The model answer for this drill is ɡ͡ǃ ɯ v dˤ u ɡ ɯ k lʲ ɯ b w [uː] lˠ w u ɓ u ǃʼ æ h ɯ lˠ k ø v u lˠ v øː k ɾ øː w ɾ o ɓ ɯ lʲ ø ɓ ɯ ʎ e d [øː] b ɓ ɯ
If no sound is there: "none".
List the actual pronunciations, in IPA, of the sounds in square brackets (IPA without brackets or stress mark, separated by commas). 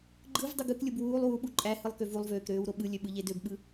uː, ø